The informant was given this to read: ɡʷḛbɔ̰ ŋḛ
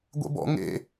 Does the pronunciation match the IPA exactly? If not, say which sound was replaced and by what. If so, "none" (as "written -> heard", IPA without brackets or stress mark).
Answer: none